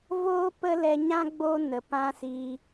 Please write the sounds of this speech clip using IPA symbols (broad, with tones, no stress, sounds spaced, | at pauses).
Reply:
v oː˦ p ə˦ l ɛ˧ ɲ ã˦ ɡ͡b o˧ n ə˨ p ã˦ s i˧